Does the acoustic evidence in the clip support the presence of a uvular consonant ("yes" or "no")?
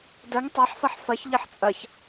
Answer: no